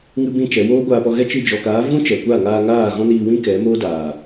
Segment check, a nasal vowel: present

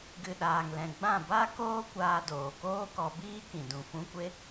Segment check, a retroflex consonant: absent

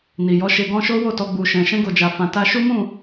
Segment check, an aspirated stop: absent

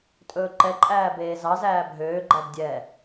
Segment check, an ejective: present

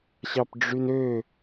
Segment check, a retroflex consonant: present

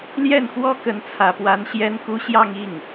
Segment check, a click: absent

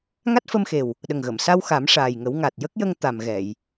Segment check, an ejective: absent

